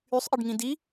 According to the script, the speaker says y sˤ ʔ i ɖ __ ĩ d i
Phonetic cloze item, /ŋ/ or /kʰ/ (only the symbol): ŋ